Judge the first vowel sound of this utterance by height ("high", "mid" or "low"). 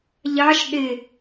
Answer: low